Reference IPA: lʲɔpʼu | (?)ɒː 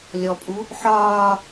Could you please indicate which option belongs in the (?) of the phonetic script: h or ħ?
ħ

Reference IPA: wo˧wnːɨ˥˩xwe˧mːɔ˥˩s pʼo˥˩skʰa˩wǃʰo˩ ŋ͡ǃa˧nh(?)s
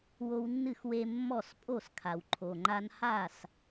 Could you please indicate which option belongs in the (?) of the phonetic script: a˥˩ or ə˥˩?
a˥˩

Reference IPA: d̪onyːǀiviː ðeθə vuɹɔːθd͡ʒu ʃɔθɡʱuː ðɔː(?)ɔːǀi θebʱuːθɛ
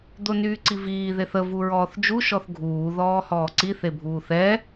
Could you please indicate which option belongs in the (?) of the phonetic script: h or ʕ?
h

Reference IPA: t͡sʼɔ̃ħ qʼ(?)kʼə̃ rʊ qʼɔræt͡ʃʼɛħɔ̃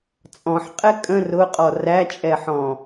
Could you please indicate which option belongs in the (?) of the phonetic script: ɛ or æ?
ɛ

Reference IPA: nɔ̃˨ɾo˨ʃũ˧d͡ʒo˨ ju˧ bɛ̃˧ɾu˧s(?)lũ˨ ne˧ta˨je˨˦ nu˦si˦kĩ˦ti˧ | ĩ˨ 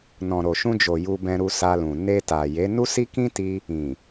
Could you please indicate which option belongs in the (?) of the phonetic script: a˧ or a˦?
a˧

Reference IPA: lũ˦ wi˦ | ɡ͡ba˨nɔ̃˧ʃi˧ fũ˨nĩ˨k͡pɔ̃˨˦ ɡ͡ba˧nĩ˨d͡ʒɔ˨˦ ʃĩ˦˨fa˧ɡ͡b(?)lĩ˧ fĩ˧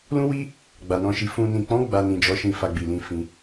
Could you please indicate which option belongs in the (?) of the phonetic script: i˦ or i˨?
i˨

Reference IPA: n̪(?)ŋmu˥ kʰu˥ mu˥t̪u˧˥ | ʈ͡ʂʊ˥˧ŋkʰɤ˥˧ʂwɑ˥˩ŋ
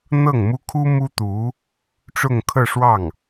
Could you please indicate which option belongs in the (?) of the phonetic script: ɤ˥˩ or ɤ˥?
ɤ˥˩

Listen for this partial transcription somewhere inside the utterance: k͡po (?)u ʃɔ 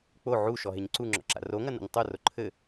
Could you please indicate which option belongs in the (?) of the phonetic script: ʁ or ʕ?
ʕ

